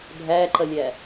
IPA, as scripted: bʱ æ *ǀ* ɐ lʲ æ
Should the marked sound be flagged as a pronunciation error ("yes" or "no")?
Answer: yes